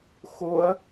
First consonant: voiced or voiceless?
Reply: voiceless